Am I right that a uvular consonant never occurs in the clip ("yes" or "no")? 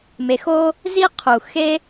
no